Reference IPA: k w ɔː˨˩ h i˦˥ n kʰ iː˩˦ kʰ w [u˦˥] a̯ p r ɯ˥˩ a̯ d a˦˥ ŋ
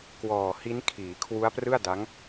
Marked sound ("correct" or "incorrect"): correct